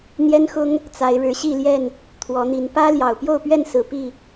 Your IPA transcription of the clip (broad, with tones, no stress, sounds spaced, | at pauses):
n̪ j ɛ˦ n x ʊ˦ ŋ | t͡s a˨˦ ɪ̯ ɻ ɻ̩˨˦ ɕ i˥˨ l j ɛ˥˨ n | t̪ʰ w ɔ˨˦ n̪ i˨˦ n p ä˦ l j ɑ˨˩ ʊ̯ p j o˥˨ ʊ̯ p ɥ ɛ˥˨ n s ɹ̩˨˩ p i˥˨